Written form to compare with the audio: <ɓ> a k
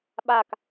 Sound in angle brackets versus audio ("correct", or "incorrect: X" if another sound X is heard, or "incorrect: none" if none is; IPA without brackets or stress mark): correct